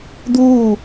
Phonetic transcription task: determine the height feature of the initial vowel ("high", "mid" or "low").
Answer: high